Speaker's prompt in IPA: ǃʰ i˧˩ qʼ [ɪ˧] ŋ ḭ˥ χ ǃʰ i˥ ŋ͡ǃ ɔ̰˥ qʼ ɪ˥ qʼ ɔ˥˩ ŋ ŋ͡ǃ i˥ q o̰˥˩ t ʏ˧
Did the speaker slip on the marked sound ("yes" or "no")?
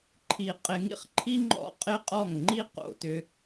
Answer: no